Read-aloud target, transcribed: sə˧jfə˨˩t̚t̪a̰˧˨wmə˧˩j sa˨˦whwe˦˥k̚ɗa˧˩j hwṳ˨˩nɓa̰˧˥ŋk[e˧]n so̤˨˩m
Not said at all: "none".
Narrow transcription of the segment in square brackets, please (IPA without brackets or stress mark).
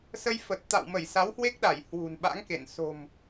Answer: ḛ˧˨